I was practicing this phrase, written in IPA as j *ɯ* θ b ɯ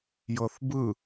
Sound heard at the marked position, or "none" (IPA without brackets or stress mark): ɤ